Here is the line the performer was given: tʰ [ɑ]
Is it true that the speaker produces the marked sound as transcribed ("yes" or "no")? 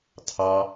yes